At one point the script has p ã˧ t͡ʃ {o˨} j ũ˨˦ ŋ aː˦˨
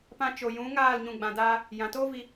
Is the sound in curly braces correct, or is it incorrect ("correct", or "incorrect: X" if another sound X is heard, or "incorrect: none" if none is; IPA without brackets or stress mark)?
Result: correct